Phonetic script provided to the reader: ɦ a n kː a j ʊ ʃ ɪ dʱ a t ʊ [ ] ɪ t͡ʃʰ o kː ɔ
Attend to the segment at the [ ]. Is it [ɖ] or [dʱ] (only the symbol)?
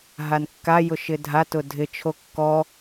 dʱ